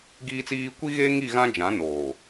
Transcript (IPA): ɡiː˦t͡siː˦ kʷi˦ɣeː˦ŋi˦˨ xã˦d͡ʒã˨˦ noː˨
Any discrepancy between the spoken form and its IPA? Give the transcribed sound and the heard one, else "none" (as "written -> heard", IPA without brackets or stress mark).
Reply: x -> ɣ